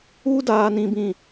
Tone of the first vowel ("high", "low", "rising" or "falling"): high